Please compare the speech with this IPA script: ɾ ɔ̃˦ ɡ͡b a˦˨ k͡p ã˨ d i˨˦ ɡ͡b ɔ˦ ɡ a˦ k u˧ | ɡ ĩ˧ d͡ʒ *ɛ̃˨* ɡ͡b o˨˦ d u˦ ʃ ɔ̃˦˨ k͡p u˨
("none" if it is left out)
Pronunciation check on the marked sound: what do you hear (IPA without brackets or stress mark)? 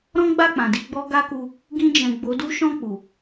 ɛ̃˨